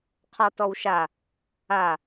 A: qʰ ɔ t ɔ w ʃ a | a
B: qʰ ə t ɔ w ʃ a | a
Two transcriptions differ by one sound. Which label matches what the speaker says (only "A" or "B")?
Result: A